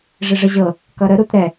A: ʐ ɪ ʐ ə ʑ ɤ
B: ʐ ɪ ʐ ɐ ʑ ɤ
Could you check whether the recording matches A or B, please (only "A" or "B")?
A